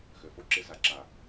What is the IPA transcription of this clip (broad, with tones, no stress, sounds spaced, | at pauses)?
x ø˨ f o˦ ǁ ɪ˦ z a˧ ǁ a˨